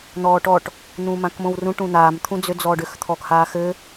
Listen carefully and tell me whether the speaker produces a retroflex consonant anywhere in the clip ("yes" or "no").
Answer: yes